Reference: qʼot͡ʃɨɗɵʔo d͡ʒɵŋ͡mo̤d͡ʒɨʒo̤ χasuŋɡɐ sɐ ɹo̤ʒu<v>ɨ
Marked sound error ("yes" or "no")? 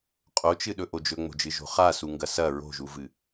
no